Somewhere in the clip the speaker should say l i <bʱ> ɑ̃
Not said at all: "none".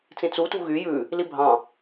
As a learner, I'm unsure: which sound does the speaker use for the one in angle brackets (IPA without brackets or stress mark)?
bʱ